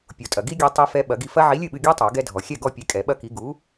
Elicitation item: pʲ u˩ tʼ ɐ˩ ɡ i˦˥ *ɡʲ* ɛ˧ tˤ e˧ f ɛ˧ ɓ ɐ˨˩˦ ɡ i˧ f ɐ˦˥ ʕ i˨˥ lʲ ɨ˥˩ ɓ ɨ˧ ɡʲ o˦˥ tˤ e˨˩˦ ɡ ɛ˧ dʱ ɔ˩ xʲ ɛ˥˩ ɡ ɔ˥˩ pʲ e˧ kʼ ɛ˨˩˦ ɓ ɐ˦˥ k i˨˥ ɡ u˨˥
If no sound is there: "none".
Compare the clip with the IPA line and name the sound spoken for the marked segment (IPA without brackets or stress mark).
ɡʲ